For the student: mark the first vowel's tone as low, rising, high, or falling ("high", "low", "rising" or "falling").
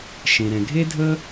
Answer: low